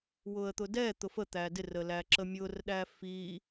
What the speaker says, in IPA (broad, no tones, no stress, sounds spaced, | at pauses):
w ʊ ə̯ t̪ ʊ d ɛ t̪ ʊ f ə t̪ æ d ɪ r ə l æ ǁ ə mʲ ʊ r ɗ æ f i